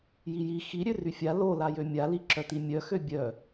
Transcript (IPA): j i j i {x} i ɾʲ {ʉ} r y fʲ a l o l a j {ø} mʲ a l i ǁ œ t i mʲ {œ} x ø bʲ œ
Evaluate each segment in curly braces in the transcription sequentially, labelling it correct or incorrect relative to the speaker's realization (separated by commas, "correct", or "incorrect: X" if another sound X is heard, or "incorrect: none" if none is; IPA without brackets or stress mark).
correct, incorrect: ø, correct, correct